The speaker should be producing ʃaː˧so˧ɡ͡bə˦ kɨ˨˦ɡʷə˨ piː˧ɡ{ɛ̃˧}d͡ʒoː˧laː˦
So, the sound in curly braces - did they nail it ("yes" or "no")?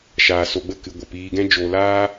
no